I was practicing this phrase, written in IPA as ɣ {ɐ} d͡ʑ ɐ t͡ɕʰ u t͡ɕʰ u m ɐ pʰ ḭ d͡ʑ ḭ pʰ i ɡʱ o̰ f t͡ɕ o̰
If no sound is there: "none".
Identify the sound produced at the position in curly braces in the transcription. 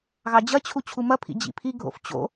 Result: ɑ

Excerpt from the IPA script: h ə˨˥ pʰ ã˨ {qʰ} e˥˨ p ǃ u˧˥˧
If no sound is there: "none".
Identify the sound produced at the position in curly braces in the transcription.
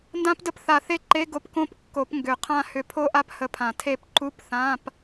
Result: tʰ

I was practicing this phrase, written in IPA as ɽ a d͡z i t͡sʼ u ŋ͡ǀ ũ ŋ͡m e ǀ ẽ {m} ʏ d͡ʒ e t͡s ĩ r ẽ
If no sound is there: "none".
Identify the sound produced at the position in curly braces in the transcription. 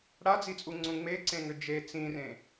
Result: ŋ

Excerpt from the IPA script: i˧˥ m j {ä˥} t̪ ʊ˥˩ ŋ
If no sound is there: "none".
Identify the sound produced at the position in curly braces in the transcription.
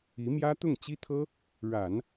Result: ä˥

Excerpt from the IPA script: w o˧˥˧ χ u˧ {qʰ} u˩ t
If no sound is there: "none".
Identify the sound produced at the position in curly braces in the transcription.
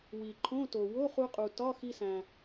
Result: qʼ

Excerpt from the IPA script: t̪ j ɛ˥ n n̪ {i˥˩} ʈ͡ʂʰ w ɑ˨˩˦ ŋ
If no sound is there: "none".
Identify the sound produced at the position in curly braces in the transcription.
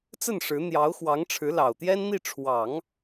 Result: i˥˩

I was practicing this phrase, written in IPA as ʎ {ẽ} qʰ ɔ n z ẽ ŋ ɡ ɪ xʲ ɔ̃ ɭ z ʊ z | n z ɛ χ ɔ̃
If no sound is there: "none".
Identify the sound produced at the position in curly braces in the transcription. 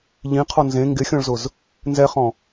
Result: ĩ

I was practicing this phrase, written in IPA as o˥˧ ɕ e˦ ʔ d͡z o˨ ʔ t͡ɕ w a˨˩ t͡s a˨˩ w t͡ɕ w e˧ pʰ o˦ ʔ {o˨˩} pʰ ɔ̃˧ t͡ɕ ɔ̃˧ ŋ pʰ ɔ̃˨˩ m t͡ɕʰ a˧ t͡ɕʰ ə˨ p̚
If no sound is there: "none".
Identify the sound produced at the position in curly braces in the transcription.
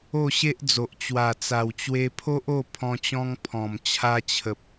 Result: o˥˧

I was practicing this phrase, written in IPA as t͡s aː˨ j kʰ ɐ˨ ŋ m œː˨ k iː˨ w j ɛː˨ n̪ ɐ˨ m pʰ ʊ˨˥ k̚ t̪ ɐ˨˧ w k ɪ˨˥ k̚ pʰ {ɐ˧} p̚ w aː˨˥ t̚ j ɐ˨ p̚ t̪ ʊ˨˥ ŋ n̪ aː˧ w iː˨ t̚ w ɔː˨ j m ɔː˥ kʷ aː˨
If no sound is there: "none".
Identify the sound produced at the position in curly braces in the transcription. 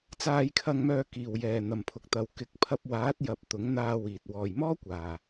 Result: ɐ˧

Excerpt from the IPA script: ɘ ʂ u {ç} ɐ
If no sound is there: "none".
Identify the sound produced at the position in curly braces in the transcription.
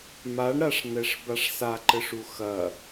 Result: x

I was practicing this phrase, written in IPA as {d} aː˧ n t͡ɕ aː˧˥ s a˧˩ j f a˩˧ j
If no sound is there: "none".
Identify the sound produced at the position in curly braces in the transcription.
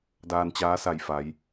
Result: d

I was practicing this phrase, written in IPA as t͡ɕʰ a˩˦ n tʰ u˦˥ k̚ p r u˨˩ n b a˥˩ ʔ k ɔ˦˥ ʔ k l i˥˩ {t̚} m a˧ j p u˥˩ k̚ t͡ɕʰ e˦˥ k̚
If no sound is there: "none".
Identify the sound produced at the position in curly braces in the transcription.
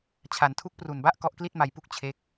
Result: t̚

